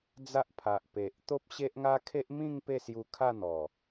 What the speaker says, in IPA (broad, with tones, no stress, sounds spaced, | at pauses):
d͡z a˦ ʔ pʰ a˨ ʔ p e˨ ʔ t̪ o˦ p̚ ɕ e˦ ʔ ŋ a˦ kʰ e˦ ʔ m ĩ˥˧ ŋ p e˥˧ s j u˧ kʰ a˥˧ n̪ ɔ˨˩